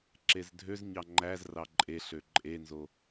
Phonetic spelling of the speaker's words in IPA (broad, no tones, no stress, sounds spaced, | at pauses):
ǁ e z dʱ ø z ɲ ɑ ŋ͡ǃ æ z r ɑ ǃʼ e ɬ ø ǃʼ e n z o